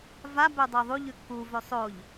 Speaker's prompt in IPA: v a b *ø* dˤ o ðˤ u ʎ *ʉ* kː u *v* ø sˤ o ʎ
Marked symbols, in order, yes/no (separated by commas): yes, yes, yes